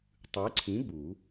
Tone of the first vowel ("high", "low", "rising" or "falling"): rising